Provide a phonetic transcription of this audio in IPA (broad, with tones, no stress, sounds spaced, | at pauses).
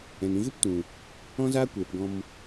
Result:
ɛ̃˨ n ĩ˧ ɣ ɨ˦ p t ũ˨ | ɔ̃˦ z aː˦ kʷ eː˨ p ɡ ɔ̃˧ m